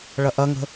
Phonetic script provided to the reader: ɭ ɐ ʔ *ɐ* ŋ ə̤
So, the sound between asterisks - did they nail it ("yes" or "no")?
yes